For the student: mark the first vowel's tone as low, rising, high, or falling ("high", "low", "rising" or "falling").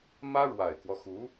high